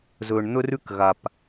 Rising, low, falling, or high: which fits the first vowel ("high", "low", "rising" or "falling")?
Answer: low